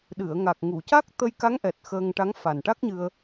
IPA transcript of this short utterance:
ɗɨ˨˩˨ə̯ŋa˨˩k̚ ŋu˨˩˨ca˦˥k̚t̪ə˧jka˧˥ŋ ʔɛ˨˩t̚ xəː˧ŋʈa˧˥ŋ fa˨˩nʈa˦˥k̚ɲɨ˧ə̯

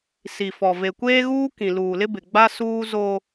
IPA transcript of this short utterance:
si˨fɔ˨ ve˨kʷeː˦ɣuː˦ kĩ˨luː˨lɪ˦ bɪ˨ɡ͡ba˦ suː˦zo˦

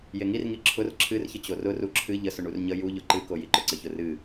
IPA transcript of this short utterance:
jeŋirŋi ǁʰʊr ǁʰɨrçə t͡ɕorʊru ǁʰɨ ʎəsʊ ɳurɲə juʎʊ ǃɨkojiǃʊ ǀəçʊrɨ

